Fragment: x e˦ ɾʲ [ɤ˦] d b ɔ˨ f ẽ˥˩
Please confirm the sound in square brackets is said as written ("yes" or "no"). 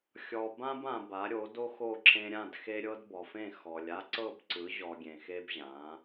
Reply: yes